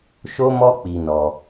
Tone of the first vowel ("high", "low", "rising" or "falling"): high